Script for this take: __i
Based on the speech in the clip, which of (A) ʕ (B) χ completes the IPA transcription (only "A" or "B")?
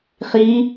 B